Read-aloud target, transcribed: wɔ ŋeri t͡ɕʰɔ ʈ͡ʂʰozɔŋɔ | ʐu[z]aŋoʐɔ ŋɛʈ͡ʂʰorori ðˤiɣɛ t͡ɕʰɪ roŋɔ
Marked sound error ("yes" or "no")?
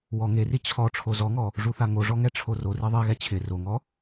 yes